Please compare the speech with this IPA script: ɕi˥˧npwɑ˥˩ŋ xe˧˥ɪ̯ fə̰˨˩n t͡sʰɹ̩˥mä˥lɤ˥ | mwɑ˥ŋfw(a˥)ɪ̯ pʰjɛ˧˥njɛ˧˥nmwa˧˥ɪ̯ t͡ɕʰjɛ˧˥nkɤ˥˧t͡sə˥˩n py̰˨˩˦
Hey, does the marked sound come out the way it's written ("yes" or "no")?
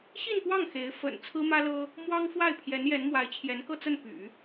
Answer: no